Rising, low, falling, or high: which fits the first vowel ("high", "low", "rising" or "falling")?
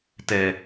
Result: low